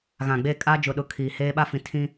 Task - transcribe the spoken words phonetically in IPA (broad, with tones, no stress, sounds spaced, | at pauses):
ɣ ã˨ ɡ͡b e˦˨ kʼ a˦ d͡ʒ ʊ˨ ɗ ʊ˨ kʰ iː˨ h eː˦ ɓ a˦ f ĩ˨ tʰ ĩ˦